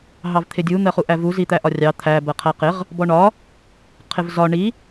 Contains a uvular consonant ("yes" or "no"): yes